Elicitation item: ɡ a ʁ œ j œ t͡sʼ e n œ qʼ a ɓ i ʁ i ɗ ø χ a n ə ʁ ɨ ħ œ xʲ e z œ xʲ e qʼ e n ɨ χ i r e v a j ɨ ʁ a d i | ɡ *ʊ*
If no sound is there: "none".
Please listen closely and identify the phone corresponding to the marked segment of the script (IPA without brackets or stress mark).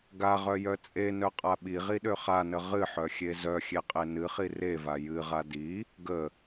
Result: ə